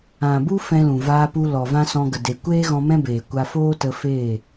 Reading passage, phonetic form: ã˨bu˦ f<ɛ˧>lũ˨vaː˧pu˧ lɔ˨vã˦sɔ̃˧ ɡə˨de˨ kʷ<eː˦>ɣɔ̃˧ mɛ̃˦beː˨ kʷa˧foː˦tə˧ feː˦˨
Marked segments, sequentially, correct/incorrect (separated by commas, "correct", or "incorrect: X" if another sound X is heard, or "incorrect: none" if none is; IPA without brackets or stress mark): incorrect: ɛ̃˧, correct